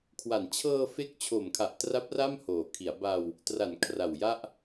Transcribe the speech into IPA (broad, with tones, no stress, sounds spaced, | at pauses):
kʰ w a˩˦ n t͡ɕʰ ɤː˧ f e˦˥ k̚ t͡ɕʰ o˨˩ m kʰ a˨˩ ʔ t r a˦˥ p̚ r a˥˩ m h oː˩˦ kʰ i˩˦ a̯ b a˧ w | t r a˩˦ n kʰ r a˨˩ w j a˥˩ ʔ